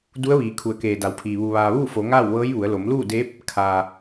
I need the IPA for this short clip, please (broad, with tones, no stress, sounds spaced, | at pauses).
d u˧˥ ə̯ ʋ iː˩ kʰ u˩˧ ə̯ k eː˩ d a˩˧ w pʰ iː˩ ʋ u˩ ʋ aː˩ ʋ uː˥˨ f o˩˧ ŋ aː˥˨ w ʋ ɤː˧˥ j ʋ u˩˧ ə̯ l o˩˧ m l uː˥˨ d eː˧˥ p̚ | kʰ aː˩